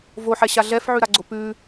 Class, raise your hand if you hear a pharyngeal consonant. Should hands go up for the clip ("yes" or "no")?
yes